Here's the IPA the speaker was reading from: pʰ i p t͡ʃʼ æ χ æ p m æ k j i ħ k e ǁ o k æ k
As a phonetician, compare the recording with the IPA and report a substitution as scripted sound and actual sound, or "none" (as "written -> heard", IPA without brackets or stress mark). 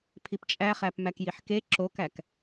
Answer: none